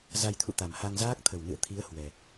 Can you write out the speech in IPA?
za˧jt̪ʰṵ˧˨t̪a˨˩m ha˧ŋzaː˦˥k̚t̪ʰə˨˩wnɨ̰˧˨ə̯ t̪ʰi˨˦ə̯ hwɛ˨˩

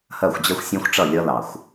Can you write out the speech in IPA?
hɜ˦˨xʷd͡ʑɜ˦xʷsʲæ̃˦xʷʈ͡ʂʌ˦˨ lʲʌ˦ lɑ˨xʷ

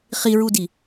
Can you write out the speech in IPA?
χiɹudi

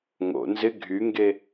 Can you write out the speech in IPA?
ŋo̰ nzɪ ɡʱyŋɡe

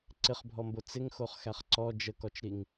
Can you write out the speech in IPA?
ǀɪχbʱɔmbo t͡sɪŋxoχxæχ ǀɔ d͡ʒəkɔt͡ʃɾiŋ

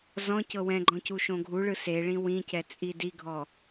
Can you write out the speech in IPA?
zɔ̃ cɤwɛ̃ɡ͡ǃɔ̃ cuʃõɡʱuɭɯ seɭĩ wĩcɛ t͡sʼidiɡʱɔ

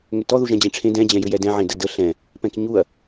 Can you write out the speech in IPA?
ŋʏtɔ ðuʒɛ̃d͡ʑẽʈ͡ʂʰẽ dɛ̃ d͡ʑɛ̃jʏjɛdɛ̃ ʕẽdədə ɬɛ̃ | pɛ̃kɲuɐ̯

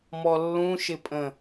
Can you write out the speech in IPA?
mɔlːũʃɪpʼə̃

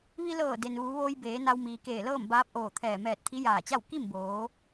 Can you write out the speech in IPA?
ʋi˧lɤː˧˩ de˩nʋuː˩˧ʋoː˧j beː˩˧na˧w miː˩keː˧˩lɤː˥˨m baː˧˥p̚ʔoː˧˩t̪ʰɛː˧˩ mɛː˧˩t̚t̪ʰi˧˥jaː˧˩t͡ɕa˥˨w ki˥˨mboː˩˧

